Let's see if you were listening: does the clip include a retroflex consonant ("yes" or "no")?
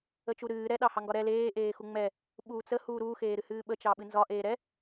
no